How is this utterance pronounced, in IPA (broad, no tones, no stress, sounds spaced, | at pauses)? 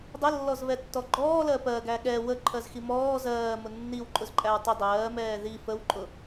dˤ ə lː ɔ z β ɛ tː ɔ ɡ͡ǃ ɔː l ɜ p ɜ ɡ æ ɠ ɛ w ə ǃʰ ɜ z x i m ɔː z ɜː m ʊ nː i w ǃʼ ʊ z ǃʼ æ w tˤ ʊ dˤ ɜː m ɛː ð i f ə w ǃʼ ʊ